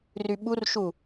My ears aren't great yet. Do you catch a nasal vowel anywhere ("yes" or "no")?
no